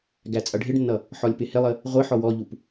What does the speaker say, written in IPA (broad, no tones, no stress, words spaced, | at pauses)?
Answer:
ɡæt͡sʼʌɖʱɪɖnːʌ | ħɔlʲpɪhɪlˠə | ʁʷɪ ħɔwɔʎup